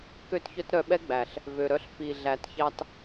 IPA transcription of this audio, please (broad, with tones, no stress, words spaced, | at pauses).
kø˦˨tçœ˦tɾœ˧ɓɛ˦ ɡ͡bæ˨ɬ | vø˨ɾœ˧ɬ fi˨ ɮæ˨tçɑ˧t